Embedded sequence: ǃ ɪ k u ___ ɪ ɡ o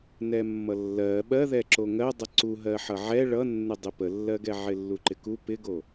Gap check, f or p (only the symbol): p